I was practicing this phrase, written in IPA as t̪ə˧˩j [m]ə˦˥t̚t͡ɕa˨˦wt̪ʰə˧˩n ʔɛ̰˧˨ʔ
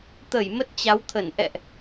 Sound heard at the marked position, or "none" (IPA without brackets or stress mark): m